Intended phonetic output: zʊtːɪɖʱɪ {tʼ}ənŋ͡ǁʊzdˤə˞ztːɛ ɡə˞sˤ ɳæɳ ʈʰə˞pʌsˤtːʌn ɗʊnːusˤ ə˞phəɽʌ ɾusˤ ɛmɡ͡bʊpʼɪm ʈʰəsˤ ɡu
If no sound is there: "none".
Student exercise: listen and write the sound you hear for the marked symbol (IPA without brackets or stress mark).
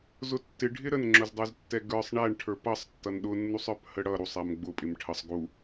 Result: ɾ